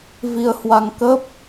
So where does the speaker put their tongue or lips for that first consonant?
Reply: lips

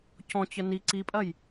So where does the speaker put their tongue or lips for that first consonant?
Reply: palate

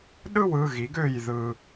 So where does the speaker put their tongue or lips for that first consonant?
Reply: tongue tip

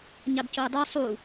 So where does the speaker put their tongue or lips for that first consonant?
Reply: palate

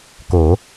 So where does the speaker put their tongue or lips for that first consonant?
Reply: velum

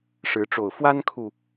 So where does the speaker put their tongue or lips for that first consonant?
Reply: retroflex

